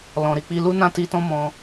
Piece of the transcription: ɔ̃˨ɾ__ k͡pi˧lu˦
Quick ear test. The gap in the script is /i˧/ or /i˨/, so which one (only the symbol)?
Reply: i˨